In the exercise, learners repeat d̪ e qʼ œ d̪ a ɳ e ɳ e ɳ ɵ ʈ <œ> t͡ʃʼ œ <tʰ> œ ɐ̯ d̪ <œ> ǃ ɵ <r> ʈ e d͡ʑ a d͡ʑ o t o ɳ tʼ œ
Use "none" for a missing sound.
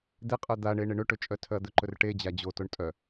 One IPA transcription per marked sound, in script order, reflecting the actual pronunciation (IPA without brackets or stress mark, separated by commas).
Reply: ɵ, tʰ, ɵ, r